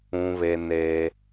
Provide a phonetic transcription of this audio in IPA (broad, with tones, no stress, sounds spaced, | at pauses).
ũ˦ β e˦ n e˦